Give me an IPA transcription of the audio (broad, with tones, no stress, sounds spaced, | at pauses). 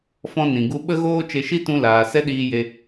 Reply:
f ɔ̃˧ n ĩ˨ ɡ u˧ ɓ ə˦ ɣ oː˦ t͡ʃ e˧ ʃ i˦ t ũ˧ l aː˨ s ɛ˦ ɗ iː˧ j e˧